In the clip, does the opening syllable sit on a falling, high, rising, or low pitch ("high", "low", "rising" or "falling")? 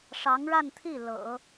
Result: rising